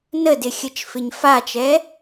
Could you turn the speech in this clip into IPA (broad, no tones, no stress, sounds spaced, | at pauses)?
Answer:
n ə d ɪ xʲ ɘ t͡ʃ f ɪ ɲ f a t͡ʃ ɛ